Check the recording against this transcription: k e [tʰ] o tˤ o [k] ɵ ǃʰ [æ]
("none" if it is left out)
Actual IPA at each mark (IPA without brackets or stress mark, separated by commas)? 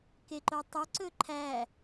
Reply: ǃ, ǀ, æ